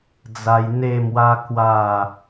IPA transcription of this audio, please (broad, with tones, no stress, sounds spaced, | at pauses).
d͡z a˧ j n̪ e˥˧ m w a˦ k w a˥˧